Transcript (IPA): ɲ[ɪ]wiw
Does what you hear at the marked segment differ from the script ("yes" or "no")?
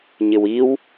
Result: no